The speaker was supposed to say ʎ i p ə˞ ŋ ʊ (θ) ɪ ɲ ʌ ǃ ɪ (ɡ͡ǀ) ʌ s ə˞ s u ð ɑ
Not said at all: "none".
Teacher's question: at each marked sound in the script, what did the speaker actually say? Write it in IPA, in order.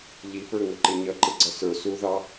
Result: ǃ, ɡ͡ǀ

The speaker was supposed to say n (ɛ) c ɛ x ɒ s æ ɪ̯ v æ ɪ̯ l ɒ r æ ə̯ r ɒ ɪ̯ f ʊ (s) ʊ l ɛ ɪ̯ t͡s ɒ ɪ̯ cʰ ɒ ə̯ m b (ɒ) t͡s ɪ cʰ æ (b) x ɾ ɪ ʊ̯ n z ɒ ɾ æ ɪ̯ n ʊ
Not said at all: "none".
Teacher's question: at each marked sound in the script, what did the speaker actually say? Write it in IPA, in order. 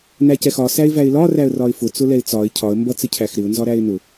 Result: æ, t͡s, ʌ, none

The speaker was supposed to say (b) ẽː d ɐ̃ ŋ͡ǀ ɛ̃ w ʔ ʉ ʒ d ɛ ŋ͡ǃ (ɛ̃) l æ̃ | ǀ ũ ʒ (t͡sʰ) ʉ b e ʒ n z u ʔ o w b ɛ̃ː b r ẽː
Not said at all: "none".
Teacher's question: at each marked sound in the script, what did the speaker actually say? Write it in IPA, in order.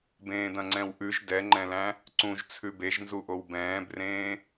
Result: b, ɛ̃, t͡sʰ

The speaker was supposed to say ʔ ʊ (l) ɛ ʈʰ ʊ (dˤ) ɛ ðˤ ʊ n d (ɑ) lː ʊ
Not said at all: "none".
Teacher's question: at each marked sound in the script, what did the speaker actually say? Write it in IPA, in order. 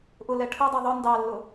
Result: l, dˤ, ɑ

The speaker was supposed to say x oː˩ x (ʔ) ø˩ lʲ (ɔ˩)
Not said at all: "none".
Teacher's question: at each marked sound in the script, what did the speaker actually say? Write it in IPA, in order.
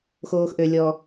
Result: ʔ, ɔ˩

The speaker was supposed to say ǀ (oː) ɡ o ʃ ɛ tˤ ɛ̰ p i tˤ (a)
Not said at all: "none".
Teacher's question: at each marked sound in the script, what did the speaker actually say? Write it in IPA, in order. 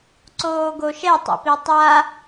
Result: oː, a

